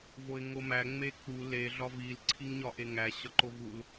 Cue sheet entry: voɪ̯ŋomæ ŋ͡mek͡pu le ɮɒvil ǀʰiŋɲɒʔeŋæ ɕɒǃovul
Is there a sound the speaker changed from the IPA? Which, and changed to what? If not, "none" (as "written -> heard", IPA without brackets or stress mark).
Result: none